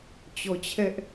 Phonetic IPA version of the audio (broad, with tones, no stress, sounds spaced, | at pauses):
t͡ɕ ɔ˨ t͡ɕʰ ɛ˦ ʔ